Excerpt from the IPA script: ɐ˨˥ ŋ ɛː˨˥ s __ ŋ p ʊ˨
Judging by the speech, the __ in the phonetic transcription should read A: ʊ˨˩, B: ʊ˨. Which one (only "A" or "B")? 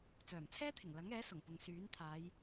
A